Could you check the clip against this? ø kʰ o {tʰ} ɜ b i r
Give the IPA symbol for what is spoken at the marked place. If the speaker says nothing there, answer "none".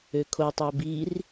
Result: tˤ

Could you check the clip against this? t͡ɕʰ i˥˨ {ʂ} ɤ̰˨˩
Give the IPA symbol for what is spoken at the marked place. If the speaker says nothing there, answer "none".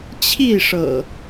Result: ʂ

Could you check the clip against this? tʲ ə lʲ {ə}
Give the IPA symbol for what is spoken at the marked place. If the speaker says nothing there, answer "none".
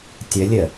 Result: ə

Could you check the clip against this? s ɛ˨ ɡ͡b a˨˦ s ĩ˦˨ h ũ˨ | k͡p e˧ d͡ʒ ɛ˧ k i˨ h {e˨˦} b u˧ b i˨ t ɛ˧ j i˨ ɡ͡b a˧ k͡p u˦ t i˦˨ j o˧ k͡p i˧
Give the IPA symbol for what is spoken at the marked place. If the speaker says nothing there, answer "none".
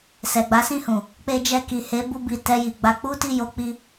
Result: e˨˦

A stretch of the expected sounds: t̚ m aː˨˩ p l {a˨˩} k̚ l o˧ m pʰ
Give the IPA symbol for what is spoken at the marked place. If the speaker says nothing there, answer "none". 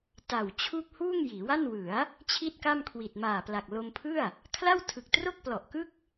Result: a˨˩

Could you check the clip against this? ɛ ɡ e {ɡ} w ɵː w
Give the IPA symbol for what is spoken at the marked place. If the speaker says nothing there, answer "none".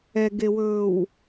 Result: none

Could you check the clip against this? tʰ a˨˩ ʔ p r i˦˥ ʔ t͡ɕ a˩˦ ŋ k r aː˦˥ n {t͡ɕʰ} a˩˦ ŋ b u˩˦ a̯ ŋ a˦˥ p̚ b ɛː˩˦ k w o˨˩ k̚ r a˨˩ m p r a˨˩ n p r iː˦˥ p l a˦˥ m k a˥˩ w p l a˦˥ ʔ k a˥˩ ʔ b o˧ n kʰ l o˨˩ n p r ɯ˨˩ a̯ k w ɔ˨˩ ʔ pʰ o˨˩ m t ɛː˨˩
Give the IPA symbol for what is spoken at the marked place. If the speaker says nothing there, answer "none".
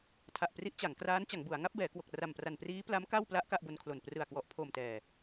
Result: t͡ɕ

